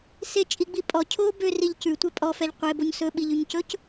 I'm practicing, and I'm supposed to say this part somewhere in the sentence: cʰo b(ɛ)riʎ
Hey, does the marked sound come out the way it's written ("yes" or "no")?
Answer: no